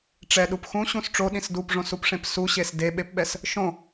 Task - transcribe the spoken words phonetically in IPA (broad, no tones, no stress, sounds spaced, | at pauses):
ʈ͡ʂ ɛ ɗ u p x ũ ɕ ũ s ʈ͡ʂ o ɗ ĩ s d u p ʐ õ s u p ʂ ẽ p s u ɕ e s d e ɓ e p ɓ ɛ s | ʃ õ